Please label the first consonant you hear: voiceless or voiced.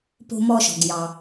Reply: voiceless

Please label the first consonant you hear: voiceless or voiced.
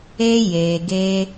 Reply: voiced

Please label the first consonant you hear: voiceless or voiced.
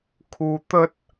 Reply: voiceless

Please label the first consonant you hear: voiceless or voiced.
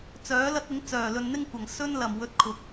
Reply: voiceless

